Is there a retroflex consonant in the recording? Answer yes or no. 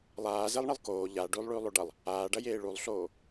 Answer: yes